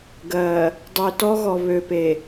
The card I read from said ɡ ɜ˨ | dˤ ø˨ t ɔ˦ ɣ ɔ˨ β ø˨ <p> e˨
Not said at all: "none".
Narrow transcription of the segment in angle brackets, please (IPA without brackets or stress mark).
p